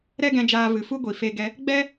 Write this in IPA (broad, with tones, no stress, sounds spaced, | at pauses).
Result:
ɾ ɛ˦ ɡ ɛ̃˧ d͡ʒ aː˧ v ɨ˨ f u˦ ɡʷ i˨ f e˧ ɡ ɛ˧ | ɡ͡b ɛ˦